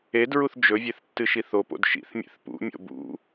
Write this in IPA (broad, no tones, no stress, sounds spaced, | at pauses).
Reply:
e d ɹ u θ d͡ʒ ɵ vʲ e θ tː ɨ ʃ i θ o p o̰ d ʃ ḭ θ mʲ ḛ θ p ṵ mʲ o̰ b ṵ